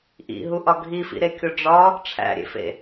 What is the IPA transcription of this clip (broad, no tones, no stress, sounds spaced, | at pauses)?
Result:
ʔ ḭ ɦ u ʔ ɒ ɡʱ i f ḭ ɾ e kʲ o ɖ͡ʐ ɒ | ʈ͡ʂʰ æ̰ ɾʲ ḛ f ḛ